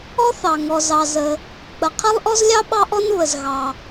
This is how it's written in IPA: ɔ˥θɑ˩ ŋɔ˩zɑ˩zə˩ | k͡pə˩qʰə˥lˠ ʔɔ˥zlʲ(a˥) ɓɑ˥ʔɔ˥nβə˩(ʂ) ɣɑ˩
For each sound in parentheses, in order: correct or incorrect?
incorrect, incorrect

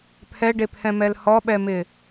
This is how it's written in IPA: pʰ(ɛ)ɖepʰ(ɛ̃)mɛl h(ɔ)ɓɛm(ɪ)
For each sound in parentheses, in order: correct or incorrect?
correct, correct, correct, correct

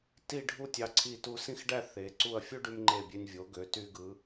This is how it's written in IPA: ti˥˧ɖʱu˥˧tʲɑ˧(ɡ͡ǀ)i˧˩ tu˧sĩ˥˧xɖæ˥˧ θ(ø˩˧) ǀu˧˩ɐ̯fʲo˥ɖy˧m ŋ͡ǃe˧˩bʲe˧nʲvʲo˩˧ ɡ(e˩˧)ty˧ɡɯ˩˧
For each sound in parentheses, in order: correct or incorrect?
incorrect, incorrect, incorrect

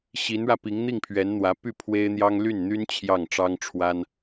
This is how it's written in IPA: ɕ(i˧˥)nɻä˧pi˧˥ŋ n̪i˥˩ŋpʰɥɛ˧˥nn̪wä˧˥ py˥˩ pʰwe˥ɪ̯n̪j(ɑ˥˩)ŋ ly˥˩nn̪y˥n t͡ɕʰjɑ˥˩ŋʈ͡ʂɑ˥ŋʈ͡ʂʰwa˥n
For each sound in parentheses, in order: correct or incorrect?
correct, incorrect

